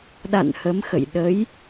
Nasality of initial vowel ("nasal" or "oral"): oral